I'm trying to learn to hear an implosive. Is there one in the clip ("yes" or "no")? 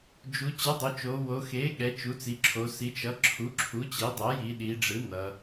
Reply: yes